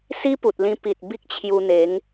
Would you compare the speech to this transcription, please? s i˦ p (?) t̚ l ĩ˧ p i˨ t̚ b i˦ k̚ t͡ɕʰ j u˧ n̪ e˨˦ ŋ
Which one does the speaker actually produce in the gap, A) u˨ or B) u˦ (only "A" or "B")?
A